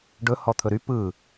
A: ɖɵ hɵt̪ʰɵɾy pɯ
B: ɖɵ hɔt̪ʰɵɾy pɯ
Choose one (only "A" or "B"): B